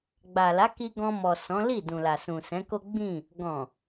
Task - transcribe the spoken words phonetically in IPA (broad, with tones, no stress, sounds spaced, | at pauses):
ɡ͡b a˨ l a˨˦ k i˧ ɡ ɔ̃˧ m ɔ˨ s ɔ̃˨˦ l i˦˨ d ũ˨ l a˨ s ũ˨ s ɛ̃˨˦ k o˦ ɡ͡b ĩ˦˨ | ɡ ɔ̃˨